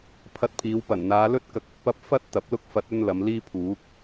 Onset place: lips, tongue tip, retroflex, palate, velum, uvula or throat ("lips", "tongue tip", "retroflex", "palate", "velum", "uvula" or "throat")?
lips